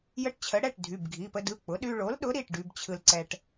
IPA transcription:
j ə˧ ʈ t͡ɕʰ ə˩˥ ɽ ɛ˩˧˩ ʈ dʱ y˩˧˩ b ɡʱ i˩˧˩ p ə˧ d ɯ˩˧˩ k͡p ʊ˩˥ ɗ y˧ ɭ o˩˥ l ɗ ʊ˩˥ ɾ i˩˧˩ ʈ ɖ y˧ b t͡ɕʰ ɯ˧ l ǀ ɛ˧ ʈ

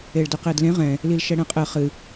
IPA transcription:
e ɭ d ə q e d l ẽ ʁ ɛ̃ | l i l ʃ ɛ ɽ ɛ̃ qʼ ɘ χ ɨ

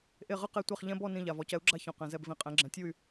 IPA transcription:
ʔ e˧˩ ʁ ɯ˥˨ q e˥˨ tʷ e˥˨ χ ʎ ɛ̃˦ b ɔ˥˨ n ĩ˧˩ ʎ a˩ v ɔ˩˧ c ɛ˩˥ u̯ ɡ͡ǁ a˦ ç ɔ̃˩ q ɛ̃˩ z ɛ˧˩ b v ĩ˩˧ qʼ ɛ̃˩˥ ɡ͡ǁ ɛ̃˩˥ tʲ u˥˨ y̯

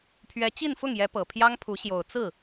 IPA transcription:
pʰ ɥ ɛ˧˥ t͡ɕ i˥˧ n f ʊ˥˩ ŋ j ɛ˧˥ p ɤ˨˩ pʰ j ɑ˥ ŋ pʰ u˧˥ ɕ j o˨˩ ʊ̯ t͡s ɹ̩˥˩

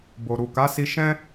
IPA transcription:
b o˨ ɾ u˨ k a˨˦ s i˧ ʃ ɛ̃˦

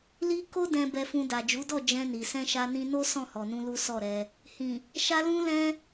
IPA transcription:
l i˦ k o˦ d ɛ̃˧ b ɛ˧ f ũ˧ d a˨ d͡ʒ u˨˦ d ɔ˦˨ d͡ʒ ɛ̃˧ n i˨ s ɛ̃˧ ʃ a˧ n ĩ˧ n o˦ s ɔ̃˦˨ h ɔ˨ n ũ˧ l u˦ s ɔ˦˨ ɾ ɛ˧ | h ĩ˨ | ʃ a˧ l ũ˧ l ɛ̃˧

